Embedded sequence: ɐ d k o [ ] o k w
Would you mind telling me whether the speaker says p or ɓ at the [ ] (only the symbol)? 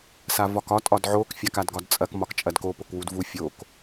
p